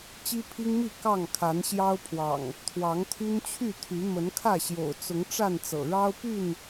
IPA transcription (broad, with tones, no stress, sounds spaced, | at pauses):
t͡ɕ i˦ pʰ i˦ ŋ m i˥˨ k ɑ˥˨ ŋ kʰ a˨˦ n ɕ j ɑ˦ ʊ̯ pʰ w ɑ̰˨˩ ŋ | t̪ʰ w ɑ˨˦ ŋ t̪ʰ y˦ n t͡ɕʰ y˥˨ t̪ʰ y˨˦ m ə˨˦ n kʰ ä˥˨ ɕ j o̰˨˩ ʊ̯ t͡s ʊ˨˦ ŋ ʈ͡ʂ a˥˨ n t͡s ɤ̰˨˩ ɻ ɑ˦ ʊ̯ p y˥˨ n